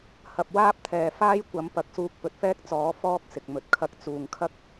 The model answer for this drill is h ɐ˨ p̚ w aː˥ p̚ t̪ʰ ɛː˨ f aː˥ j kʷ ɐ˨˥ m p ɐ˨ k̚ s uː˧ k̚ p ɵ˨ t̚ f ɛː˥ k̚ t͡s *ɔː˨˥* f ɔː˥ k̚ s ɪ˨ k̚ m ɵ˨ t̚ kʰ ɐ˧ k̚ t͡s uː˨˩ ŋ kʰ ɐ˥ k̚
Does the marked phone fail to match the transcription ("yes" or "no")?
no